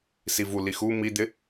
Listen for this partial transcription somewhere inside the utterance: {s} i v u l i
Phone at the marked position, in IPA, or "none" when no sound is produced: s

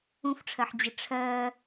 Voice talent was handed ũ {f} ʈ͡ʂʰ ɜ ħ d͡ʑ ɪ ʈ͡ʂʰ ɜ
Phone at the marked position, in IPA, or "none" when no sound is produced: f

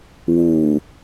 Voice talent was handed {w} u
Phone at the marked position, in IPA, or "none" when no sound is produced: w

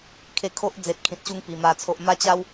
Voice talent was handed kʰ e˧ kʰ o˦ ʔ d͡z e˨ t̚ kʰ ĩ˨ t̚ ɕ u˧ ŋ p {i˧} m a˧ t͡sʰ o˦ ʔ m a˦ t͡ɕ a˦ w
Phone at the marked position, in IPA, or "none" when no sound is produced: i˨˩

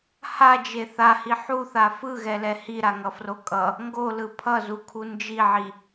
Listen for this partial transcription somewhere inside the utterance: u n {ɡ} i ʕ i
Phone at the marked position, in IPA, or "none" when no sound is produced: d͡ʒ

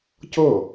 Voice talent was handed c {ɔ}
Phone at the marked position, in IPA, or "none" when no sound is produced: ɤ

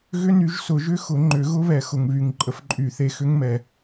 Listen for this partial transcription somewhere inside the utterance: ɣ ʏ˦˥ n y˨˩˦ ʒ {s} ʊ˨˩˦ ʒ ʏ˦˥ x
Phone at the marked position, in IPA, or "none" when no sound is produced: s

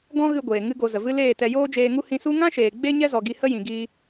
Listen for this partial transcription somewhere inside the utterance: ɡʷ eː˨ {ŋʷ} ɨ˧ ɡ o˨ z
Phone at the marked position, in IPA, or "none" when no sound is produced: ŋ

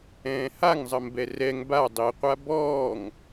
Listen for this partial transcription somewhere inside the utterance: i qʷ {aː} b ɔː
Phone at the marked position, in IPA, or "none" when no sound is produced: a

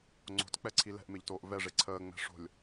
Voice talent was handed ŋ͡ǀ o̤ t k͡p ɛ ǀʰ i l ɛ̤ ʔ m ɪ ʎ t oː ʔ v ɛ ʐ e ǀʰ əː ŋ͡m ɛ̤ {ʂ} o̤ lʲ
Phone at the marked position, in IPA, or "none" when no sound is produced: ʂ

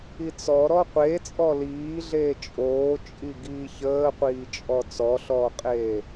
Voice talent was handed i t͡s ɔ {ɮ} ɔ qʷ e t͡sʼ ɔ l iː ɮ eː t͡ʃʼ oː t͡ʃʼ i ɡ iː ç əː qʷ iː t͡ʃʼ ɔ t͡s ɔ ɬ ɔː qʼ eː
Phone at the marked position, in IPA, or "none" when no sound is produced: ɾ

